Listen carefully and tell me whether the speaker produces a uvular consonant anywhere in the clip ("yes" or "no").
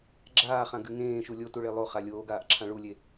yes